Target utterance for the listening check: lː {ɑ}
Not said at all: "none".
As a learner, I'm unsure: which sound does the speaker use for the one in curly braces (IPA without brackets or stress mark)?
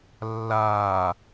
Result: a